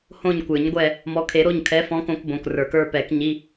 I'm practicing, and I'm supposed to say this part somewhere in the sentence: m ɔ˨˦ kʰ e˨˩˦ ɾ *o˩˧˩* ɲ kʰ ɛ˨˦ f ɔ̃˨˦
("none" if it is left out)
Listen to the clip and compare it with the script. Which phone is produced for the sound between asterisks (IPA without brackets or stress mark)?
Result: o˩˧˩